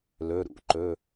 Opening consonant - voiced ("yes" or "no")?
yes